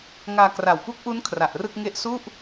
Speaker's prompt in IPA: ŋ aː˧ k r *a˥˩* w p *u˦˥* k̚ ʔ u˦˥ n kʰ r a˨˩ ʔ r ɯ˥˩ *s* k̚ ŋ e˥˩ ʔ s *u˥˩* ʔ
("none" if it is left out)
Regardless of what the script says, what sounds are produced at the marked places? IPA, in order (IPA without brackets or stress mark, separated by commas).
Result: a˨˩, u˦˥, none, u˥˩